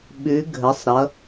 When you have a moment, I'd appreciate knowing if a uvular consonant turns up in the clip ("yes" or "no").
no